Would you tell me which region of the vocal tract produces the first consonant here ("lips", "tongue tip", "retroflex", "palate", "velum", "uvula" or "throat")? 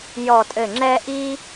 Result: palate